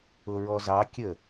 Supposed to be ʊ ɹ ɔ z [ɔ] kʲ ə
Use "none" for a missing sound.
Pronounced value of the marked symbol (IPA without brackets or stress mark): ɑ